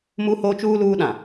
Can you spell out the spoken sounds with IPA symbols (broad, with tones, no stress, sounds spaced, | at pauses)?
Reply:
m u˦ h o˦ t͡ʃ uː˦ l uː˦ ɗ ã˨